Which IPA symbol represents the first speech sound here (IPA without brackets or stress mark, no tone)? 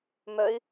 m